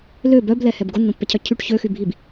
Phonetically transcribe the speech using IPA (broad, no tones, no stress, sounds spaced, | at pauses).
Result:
l ø b œ b l ɛ h ɛ b ɡ o nː õ pː ɛ cʰ œ cʰ y ʈ ç ø x y bʱ i b